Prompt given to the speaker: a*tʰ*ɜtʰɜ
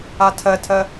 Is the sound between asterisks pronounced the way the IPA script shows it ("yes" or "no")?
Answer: yes